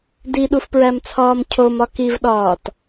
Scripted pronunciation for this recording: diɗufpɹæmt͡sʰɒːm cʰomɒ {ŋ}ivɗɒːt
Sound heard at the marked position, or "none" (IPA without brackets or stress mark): k